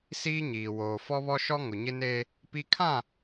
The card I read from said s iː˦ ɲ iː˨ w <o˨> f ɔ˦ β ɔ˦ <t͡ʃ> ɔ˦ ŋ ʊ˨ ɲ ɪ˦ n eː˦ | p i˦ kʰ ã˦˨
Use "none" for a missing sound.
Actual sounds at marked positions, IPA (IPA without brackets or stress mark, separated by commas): oː˨, ʃ